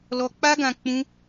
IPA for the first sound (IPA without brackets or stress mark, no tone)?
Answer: l